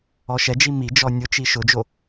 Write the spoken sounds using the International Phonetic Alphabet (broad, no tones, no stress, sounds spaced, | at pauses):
ɔ ʃ ɛ d͡ʒ i m i d͡ʒ ɔ nʲ ʊ t͡ʃ i ʃ ʊ d͡ʒ o